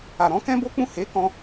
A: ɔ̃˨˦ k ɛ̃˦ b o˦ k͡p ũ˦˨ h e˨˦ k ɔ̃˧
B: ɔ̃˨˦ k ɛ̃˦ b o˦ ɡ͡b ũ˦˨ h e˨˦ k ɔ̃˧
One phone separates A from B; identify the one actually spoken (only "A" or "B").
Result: A